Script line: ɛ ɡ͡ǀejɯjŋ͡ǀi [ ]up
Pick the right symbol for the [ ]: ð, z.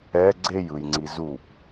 z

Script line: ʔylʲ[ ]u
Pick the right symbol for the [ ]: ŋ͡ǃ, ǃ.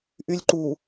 ǃ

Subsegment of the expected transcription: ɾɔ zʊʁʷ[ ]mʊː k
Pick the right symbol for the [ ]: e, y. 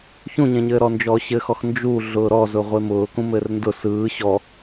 e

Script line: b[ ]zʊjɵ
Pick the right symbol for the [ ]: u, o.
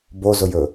o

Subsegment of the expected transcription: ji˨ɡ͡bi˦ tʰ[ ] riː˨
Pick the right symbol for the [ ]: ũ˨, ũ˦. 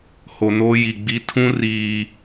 ũ˦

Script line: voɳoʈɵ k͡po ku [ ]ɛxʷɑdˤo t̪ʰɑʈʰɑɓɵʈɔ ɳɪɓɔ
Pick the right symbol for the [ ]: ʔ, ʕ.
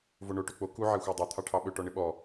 ʕ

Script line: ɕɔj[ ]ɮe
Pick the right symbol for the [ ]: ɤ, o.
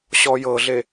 ɤ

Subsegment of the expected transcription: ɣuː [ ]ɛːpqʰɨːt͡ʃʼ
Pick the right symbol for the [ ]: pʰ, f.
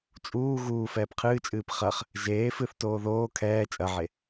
f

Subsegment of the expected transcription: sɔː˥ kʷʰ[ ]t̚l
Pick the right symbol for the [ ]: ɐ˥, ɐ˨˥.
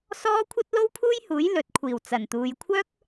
ɐ˥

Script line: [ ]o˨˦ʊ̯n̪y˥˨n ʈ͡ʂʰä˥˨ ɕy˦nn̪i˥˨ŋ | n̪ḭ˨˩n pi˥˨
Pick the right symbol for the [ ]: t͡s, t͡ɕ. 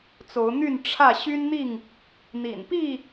t͡s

